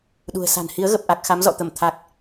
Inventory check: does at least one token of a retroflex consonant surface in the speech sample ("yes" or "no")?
no